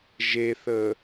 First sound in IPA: ʒ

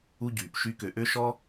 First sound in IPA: u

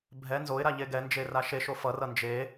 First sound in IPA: bʱ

